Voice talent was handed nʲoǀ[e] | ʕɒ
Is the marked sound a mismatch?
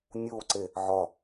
no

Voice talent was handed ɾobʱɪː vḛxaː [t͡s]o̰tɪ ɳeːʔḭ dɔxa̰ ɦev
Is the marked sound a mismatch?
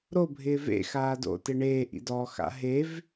yes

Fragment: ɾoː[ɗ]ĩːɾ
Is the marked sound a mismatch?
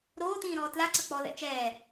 yes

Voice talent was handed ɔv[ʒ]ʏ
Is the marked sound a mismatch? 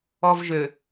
no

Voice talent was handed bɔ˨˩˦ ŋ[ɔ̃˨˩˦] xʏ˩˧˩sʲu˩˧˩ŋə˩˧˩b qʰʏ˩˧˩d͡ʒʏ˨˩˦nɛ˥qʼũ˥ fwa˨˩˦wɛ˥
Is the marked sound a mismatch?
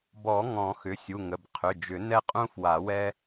no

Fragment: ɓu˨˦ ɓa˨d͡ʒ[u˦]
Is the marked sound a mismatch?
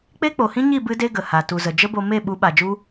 no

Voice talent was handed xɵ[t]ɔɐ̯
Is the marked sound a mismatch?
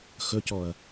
yes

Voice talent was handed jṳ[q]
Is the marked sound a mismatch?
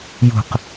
no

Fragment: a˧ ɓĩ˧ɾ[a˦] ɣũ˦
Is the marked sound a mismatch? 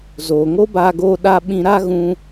no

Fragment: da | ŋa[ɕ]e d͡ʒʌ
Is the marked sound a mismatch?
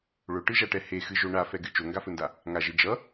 yes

